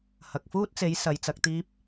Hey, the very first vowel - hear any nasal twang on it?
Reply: no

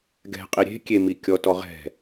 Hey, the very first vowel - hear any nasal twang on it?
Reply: no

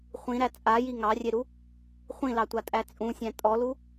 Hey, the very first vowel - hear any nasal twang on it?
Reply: yes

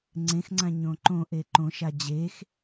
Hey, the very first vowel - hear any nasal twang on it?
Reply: yes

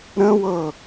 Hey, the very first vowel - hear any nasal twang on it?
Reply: yes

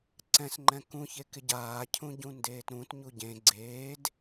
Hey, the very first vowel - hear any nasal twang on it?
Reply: yes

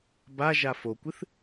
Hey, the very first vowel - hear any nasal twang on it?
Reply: no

